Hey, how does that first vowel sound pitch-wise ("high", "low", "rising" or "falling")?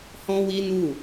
high